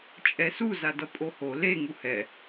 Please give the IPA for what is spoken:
t͡ʃʼ ɛ s u z a d ʌ pʼ o h o l e ŋ u h ɛ

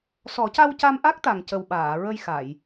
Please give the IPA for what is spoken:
s ɔ˨˩˦ c a˧ w c a˧ m ʔ a˦˥ k̚ t̪ a˨˩ ŋ c ə˨˩ w ɓ aː˨˩˨ ɹ ə˧ j x a˨˩˨ j

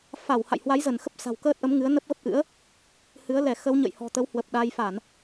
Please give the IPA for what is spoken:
f a˧˩ w h a̰˧˨ j h w a˨˦ j z ə˧˩ n x ə˦˥ p̚ s a̤˨˩ w k əː˦˥ t̚ ʔ ə˨˦ m ŋ ɨ˨˦ ə̯ n ə˦˥ p̚ ɣ ə˦˥ p̚ ʔ ɨ̰˧˥ ə̯ | h ɨ˨˦ ə̯ l ɛ˧˩ x ə˨˦ w ɲ ə̰˧˨ j h ɔ̤˨˩ t̪ ə˨˦ w h w ə˨˩ p̚ ɗ a˧ j f a˧˩˨ n

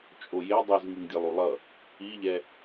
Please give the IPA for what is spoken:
t͡ʃʼ o j e dˤ u z ŋ i ŋ dʲ ɛ lˠ u lˠ ʌ | i ʎ ɛ

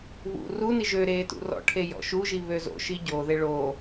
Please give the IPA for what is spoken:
β ṵ r u n i ʒ ø ɾ eː t ṵ r ɔ̰ ʈʰ e j ɔ̰ ʃ u ʒ i β ø z o̰ ʃ i ɟ o ð e ɭ oː

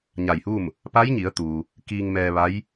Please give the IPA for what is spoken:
ɲ a˧˩ j h uː˥˨ m | p a˧˥ j ɲ i˩˧ ə̯ t̪ uː˩ | k iː˧ ŋ m ɛː˧ ʋ a˧˥ j

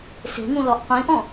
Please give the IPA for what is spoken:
s e̤ ŋ ũ l ɔ ʔ qʷ ĩ ʔ ɔ̃

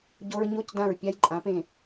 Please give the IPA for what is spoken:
ɟ o˧ ɹ ɲ o˧˥˧ c d ã˧˩ ɹ pʲ a˧ j ǃʼ ã˩˧ p ẽ˧˩

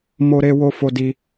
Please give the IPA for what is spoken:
m o˦ ɾ e˦ w o˦ f o˦ d i˦

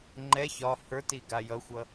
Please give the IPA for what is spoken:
ŋ͡ǃ ɛ ç ɒ h ə˞ t i ɡ a j ʌ xʷ ʌ

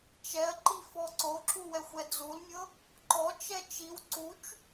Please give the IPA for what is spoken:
t͡ʃ ɛ ɐ̯ ǃ i f ɔ ǀ o ǁ u w ɛ xʷ ɛ d͡z u l mʲ ɤ | ǃ ɔ t͡ʃ ɛ t͡ʃ i w ǀ u t͡ʃ

